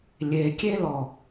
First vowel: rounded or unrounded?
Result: unrounded